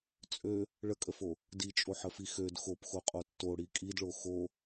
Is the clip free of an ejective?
no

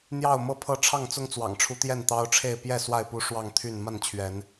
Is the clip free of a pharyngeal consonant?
yes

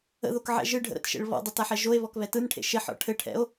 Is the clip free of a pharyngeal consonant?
no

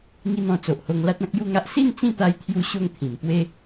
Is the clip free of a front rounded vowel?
yes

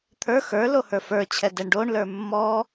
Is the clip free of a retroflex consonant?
no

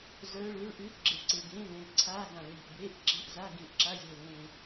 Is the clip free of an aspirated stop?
no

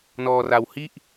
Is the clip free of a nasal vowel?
yes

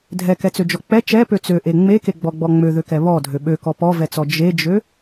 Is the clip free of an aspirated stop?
yes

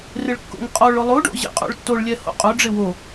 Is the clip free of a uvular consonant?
no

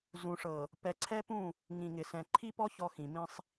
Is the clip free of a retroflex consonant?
no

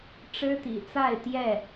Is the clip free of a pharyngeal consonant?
yes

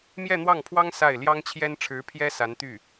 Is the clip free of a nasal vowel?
yes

